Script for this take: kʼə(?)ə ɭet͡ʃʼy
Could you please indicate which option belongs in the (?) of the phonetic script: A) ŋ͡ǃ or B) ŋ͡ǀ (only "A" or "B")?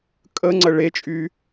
B